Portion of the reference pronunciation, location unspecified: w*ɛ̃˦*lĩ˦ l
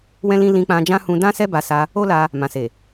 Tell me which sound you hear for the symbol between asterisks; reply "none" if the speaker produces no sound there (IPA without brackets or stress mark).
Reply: ɛ̃˦